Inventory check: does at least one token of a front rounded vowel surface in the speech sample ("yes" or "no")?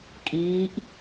no